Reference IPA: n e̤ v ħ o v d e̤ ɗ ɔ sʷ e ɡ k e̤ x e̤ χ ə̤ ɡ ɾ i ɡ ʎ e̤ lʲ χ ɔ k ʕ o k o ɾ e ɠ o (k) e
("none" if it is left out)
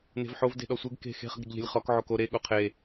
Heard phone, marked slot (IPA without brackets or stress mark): qʰ